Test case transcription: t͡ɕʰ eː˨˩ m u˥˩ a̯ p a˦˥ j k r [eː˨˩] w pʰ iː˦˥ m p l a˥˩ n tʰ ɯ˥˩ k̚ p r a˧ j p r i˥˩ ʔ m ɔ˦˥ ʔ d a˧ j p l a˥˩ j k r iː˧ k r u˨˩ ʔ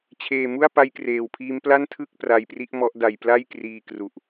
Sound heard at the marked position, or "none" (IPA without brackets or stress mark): eː˨˩